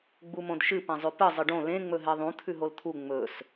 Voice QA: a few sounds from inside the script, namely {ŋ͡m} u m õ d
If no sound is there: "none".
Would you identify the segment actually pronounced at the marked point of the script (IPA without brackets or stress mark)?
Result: ɡ͡b